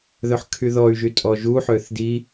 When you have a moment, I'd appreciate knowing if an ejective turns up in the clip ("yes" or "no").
yes